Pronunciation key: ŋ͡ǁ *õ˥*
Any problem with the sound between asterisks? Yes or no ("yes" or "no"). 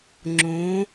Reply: yes